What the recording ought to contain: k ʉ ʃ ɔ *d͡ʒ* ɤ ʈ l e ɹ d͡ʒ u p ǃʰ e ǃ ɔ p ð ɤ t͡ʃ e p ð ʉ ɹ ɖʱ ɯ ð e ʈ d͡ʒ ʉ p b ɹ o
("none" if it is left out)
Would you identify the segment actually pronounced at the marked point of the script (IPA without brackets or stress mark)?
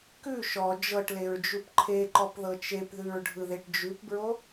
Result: d͡ʒ